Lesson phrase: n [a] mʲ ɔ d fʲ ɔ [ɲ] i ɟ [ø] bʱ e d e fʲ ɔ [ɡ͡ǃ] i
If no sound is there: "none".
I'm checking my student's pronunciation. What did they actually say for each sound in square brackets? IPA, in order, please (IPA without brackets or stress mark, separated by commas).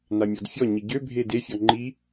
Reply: a, ɲ, ø, ŋ͡ǃ